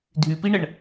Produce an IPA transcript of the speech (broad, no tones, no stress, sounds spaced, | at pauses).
dʱ y p i ɳ ə ɳ